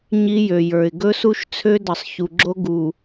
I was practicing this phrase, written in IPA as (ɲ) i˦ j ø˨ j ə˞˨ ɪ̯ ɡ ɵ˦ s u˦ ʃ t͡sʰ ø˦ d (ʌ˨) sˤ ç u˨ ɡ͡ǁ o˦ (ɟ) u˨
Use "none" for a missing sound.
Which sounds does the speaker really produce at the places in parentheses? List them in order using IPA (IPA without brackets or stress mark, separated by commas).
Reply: ɲ, ʌ˨, ɡ